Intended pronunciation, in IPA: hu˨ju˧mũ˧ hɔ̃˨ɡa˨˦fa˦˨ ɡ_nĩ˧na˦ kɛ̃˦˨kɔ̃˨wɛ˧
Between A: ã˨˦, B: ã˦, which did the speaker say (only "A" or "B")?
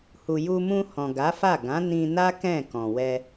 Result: A